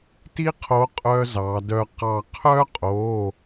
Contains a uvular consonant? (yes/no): yes